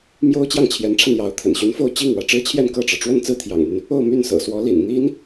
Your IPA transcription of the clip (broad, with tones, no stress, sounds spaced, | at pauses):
m j o˥ ʊ̯ t͡ɕ j ɑ˥˩ ŋ t͡ɕʰ j ɛ˧˥ n ʈ͡ʂʰ a˧ n j ɑ˧˥ ʊ̯ t̪ʰ ə̰˨˩ n ɕ y˧˥ n f o˥˧ ʊ̯ t͡ɕ i˥˩ ŋ w ä˧˥ ʈ͡ʂ ɻ̩˥ t͡ɕʰ j ɛ˥˧ n k ɤ˥˩ ʈ͡ʂ ɻ̩˩ ʈ͡ʂ w ə˥˧ n t͡s ɹ̩˥˩ t̪ʰ j ɑ̰˨˩ ŋ n̪ y˦ n | o˥˧ ʊ̯ m y˥˩ n s ɤ̰˨˩ s w ɔ˧˥ l ḭ˨˩ n n̪ i˥ n